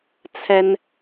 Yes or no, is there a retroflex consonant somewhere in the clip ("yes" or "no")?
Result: no